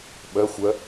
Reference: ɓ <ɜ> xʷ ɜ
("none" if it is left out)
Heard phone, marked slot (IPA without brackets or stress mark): ɜ